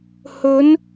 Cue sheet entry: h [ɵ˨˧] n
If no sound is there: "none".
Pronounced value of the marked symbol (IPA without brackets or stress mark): ɵ˨˧